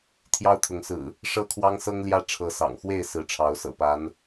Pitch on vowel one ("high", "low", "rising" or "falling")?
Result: high